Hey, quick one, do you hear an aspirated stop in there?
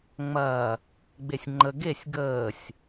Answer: no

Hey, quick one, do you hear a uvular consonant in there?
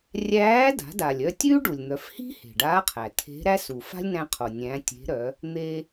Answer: yes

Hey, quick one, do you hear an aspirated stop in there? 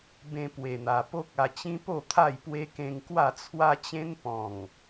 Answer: yes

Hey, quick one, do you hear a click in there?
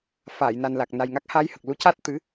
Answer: no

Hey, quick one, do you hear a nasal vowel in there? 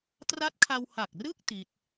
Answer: no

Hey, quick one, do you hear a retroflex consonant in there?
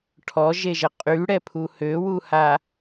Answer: yes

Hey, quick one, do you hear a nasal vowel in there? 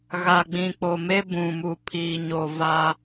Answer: yes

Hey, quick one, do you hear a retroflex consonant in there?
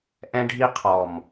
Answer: yes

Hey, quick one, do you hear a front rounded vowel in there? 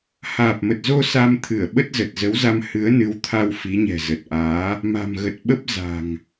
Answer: no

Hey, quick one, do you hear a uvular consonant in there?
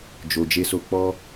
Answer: no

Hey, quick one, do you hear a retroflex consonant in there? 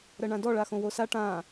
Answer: yes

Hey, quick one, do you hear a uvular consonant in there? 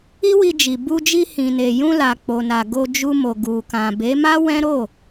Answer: no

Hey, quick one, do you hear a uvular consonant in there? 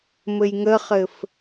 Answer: yes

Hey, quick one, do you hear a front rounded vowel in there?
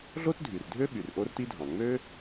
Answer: yes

